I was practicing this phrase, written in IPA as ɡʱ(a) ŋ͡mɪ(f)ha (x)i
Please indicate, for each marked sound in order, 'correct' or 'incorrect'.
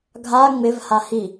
correct, incorrect: v, incorrect: h

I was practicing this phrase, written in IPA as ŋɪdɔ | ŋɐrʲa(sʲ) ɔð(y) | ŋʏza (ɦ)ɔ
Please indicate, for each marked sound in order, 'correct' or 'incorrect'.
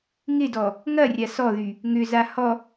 incorrect: s, correct, incorrect: h

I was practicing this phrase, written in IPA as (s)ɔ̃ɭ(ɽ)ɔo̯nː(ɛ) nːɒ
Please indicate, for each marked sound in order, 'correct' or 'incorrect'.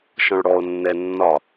incorrect: ʃ, correct, correct

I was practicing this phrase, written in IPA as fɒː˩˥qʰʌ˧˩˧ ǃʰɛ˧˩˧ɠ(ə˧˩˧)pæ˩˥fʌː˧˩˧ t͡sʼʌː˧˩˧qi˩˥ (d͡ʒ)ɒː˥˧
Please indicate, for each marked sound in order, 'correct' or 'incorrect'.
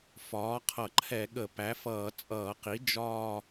correct, correct

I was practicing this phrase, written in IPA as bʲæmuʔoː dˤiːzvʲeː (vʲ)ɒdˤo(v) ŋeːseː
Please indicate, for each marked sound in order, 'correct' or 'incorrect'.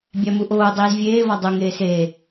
incorrect: v, incorrect: none

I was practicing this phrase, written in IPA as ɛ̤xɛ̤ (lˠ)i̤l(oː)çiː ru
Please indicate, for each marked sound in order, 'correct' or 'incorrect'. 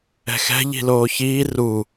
incorrect: ʎ, correct

